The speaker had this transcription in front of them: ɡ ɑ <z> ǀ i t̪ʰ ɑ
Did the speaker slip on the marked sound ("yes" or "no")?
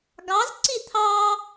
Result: no